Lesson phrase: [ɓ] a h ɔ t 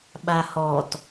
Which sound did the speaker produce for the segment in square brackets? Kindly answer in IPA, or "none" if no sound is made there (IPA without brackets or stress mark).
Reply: ɓ